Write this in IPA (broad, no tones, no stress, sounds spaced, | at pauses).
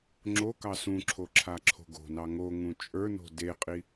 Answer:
ŋ͡ǁ o k ɑ s ũ ǁʰ o ǁʰ a ǁʰ o̤ ɡ o̤ n ɑ ŋ o ŋ ũ t͡ʃʼ ə˞ n o̤ d e qʼ i